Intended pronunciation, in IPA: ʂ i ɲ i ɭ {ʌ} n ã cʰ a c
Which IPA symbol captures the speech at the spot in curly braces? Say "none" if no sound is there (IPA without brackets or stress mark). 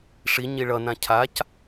ʌ